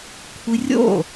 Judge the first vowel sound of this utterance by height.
high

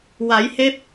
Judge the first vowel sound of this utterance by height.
low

